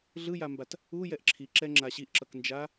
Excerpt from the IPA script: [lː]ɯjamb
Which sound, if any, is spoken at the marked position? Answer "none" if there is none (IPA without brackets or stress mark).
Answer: ɮ